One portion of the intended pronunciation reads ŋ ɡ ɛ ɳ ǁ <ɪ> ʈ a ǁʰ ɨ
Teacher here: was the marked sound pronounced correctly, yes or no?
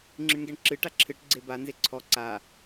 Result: no